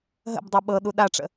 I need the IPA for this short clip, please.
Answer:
ɦ ə̰ b dˤ ø ɓ ɤ ɗ u ɗ a ʈ͡ʂ ə̰

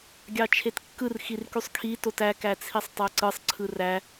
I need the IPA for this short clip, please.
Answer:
ɡʲ ɑ t͡ʃʰ e t kː ɯ r x i r k y sˤ kʰ i t o t æ k æ t͡sʰ i sˤ tˤ æ ǀ ɯ sˤ ǀʰ ɯ r æ

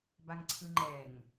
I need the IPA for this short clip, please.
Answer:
b a ŋ ǀʰ ɯ ŋ͡ǃ ɛ ŋ

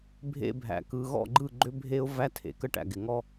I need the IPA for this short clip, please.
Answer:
bʱ ḛ˦ bʱ æ̰˨ k ɯ˨ ɣ ɔ̰˦˨ ɡ͡ǃ ɯ˦˨ ɡ͡ǃ ʏ˦ bʱ e˦ ʊ̯ v æ˦ tʰ ḛ˨ k ə˦ ʈ æ̰˨ ɡ ɪ˨ ŋ ɔ˦

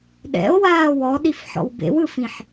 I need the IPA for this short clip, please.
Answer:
ɗ ɛ̰ o̯ w aː w ɔ ɗ i f ħ ɔ̰ w b ḛ w ɯ f ĩ ħ

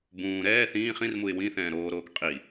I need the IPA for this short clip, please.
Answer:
b ũː ɾ ɛː θ ĩː χ ĩ r m u ɪ̯ w ĩ θ ɛ̃ː ɾ oː ɾ oː k qʼ i

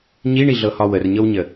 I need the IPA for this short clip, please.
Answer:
ɲ i ɳ i ɮ ɤ h ɒ w ə r ɲ ɤ w ɲ ə

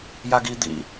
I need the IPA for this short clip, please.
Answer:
j a ɡ i d̪ ḭ

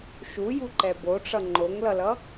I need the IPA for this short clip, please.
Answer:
ʃ u j u ǃ ɛ b o ʈ͡ʂ ʌ ŋ͡ǃ o ŋ l ʌ l ʌ

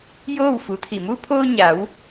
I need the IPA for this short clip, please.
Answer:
j oː˥˨ w f u˩˧ t̪ʰ i˧˩ m u˧ pʰ oː˧ ɲ a˩˧ w

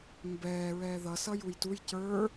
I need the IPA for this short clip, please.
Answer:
m b ɛː ɹ ɛː ð ʌ s ʌ j u j t u j c ə˞

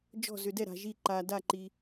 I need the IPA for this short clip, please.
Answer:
d͡ʒ ɔ̤˥˨ z ʏ˧ d ɛ˥˨ ɾ a̤˧ ʒ i˥˨ ǃ a˧ d a˥˨ ǃ i˧

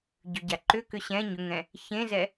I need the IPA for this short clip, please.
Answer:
ɟ ʏ ɟ a ǃ ʏ k ʏ ɕ ɛ̃ ɲ ʏ ŋ ɛ̃ | ç ẽ z ɛ

